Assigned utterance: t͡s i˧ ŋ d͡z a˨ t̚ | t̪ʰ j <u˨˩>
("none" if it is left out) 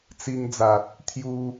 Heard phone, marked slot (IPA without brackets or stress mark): u˧